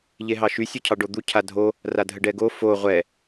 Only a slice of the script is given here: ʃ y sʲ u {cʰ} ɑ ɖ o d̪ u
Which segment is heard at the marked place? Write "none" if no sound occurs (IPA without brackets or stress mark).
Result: cʰ